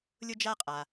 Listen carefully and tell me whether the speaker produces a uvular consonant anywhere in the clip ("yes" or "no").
yes